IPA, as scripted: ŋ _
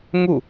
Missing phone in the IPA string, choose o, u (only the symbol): u